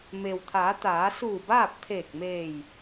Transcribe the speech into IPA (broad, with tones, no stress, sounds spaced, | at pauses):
m eː˩ w t̪ʰ aː˩˧ t̪ aː˩˧ s uː˧˩ b aː˥˨ p̚ t̪ʰ eː˧˩ k̚ m eː˧˩ j